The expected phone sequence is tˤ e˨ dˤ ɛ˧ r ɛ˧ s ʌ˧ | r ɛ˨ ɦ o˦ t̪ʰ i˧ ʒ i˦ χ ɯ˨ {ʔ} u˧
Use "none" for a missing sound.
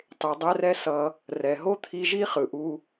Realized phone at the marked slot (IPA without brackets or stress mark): ʔ